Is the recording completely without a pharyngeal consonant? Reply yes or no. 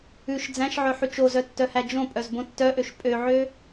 no